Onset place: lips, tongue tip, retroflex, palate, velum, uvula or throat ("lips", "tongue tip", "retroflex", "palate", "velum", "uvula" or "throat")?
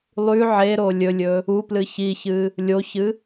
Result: tongue tip